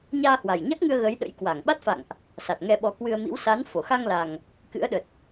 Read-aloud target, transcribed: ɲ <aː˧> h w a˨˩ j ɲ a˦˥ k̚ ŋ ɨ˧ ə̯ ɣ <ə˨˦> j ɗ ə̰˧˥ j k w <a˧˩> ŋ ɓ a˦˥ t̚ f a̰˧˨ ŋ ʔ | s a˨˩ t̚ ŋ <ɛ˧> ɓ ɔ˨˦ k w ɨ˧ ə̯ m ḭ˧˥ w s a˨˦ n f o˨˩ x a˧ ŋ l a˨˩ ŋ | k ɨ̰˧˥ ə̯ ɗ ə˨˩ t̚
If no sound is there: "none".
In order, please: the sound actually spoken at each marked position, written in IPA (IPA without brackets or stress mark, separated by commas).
aː˧, ə˨˦, a˧˩, ɛ˧